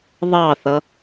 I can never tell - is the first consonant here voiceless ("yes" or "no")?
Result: no